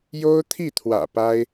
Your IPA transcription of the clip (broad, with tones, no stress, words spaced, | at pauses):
jo˥ʊ̯ t̪ʰi˥˩t̪ʰwä̰˨˩ pa˥ɪ̯